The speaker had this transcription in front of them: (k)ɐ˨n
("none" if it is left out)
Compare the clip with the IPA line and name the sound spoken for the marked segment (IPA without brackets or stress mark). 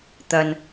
t̪